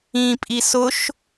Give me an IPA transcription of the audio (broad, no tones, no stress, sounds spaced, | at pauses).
ĩ pʼ i s ʊ ʃ